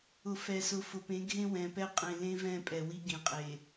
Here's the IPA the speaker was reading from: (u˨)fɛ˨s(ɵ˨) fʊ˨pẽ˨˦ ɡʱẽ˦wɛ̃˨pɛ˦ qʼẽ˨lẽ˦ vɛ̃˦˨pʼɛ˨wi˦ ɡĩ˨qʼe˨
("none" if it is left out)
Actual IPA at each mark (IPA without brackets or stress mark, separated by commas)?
ʊ˨, ʊ˨